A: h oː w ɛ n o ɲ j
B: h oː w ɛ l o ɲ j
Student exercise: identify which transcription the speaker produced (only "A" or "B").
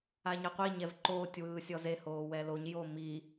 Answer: B